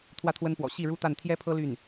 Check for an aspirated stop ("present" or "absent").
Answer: present